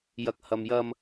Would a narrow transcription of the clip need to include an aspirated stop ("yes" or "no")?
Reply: no